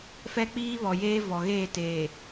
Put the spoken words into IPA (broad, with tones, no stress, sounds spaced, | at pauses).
f ɛ˦ k͡p iː˦ β ɔ˨ j eː˦ v ɔ˨ ɣ eː˦˨ t eː˨